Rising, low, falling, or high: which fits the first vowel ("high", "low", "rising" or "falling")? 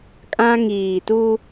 high